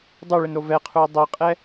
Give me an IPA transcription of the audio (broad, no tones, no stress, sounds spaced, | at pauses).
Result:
dˤ o ɭ ɪ n ɾ o v ɛ qʰ u ɐ̯ dˤ ɛ qʼ ɛ